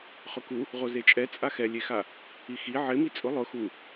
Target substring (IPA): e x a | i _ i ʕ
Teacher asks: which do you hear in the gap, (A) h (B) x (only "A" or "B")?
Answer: B